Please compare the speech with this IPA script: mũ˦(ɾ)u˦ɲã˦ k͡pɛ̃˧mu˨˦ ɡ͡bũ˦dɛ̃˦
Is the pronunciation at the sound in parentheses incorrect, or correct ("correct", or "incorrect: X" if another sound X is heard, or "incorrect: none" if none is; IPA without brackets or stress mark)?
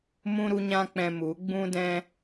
correct